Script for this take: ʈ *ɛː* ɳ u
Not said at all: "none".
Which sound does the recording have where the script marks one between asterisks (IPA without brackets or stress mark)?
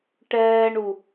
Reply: ɛː